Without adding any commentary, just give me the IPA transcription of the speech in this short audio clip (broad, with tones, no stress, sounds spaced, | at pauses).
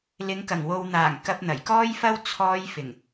l ɪ˨˧ ŋ k ɐ˨˩ ŋ w o˨ w n̪ aː˨˩ ŋ k ɐ˧ p̚ n̪ ɐ˨˩ j k ɔː˥ j f ɐ˥ w t͡sʰ ɔː˧ j f ɪ˨˩ ŋ